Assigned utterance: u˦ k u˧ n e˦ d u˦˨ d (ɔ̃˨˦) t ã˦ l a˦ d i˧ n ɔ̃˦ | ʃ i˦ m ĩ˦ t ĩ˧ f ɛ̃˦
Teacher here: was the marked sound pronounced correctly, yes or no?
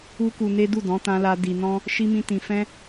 yes